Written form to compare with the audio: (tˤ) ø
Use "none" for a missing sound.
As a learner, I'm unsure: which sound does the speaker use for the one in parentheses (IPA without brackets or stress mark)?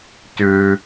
t